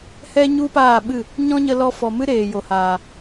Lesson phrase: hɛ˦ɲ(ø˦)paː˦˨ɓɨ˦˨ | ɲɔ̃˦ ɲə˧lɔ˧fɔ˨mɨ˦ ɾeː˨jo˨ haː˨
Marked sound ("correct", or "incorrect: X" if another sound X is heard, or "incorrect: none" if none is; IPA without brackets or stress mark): incorrect: u˦